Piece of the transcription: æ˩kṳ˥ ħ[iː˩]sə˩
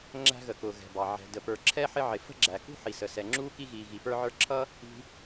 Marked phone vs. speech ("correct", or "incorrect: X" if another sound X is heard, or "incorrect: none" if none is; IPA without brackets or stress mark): incorrect: i˩